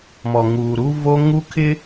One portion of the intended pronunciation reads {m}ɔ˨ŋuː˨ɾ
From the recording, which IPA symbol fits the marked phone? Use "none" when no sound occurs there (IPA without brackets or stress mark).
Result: m